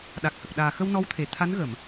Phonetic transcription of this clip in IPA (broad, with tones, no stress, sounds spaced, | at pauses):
ɗ a˨˩ k̚ h ə˨˩ k̚ ɗ aː˨˩ x ə˧ w n ɔ˧˥ w t̪ʰ e˨˩ t̪ʰ a˧˥ n ɣ ə˨˩˨ m